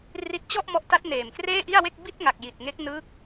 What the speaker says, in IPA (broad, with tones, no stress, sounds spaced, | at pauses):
r i˦˥ t̚ t͡ɕ ɔ˥˩ ʔ m ɔ˦˥ ʔ t a˦˥ t̚ n eː˨˩ m k r eː˥˩ ʔ i˥˩ a̯ w e˥˩ k̚ b i˥˩ t̚ ŋ a˨˩ k̚ j i˨˩ t̚ ŋ e˦˥ k̚ n ɯ˦˥ k̚